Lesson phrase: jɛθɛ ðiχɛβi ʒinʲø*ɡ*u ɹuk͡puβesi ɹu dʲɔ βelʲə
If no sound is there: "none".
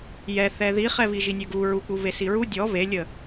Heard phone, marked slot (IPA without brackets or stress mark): ɡ